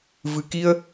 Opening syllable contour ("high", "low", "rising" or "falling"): low